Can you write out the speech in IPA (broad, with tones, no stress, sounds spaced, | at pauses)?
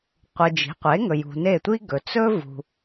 qʷ ɯ˨ d͡ʒ i̤˩˥ qʷ e˩˥ ŋ ɵ˨ j ṳ˨ n e˥˩ tʷ i˥ ɡ ɵ˨ t͡s ɵ˥ v ṳ˨